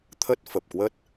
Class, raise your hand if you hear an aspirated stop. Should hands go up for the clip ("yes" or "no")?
yes